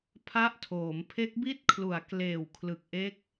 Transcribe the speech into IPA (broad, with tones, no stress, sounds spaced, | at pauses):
pʰ a˦˥ ʔ tʰ oː˩˦ m pʰ e˦˥ k̚ b i˦˥ t̚ kʰ l u˩˦ a̯ k l eː˨˩ w kʰ l ɯ˨˩ k̚ ʔ e˦˥ k̚